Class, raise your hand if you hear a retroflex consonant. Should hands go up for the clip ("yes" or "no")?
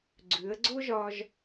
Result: no